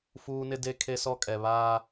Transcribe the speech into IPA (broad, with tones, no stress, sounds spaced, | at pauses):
f uː˦ n ɪ˦ d e˦ kʰ e˦ s ɔ˦ kʼ ɛ˨ β aː˦